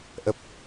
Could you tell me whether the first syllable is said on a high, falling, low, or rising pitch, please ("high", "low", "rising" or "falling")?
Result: low